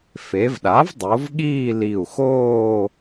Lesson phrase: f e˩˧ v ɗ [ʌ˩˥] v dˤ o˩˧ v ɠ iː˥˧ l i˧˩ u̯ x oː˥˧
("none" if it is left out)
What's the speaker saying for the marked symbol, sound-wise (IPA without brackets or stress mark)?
a˩˥